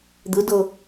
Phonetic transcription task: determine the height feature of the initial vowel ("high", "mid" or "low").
high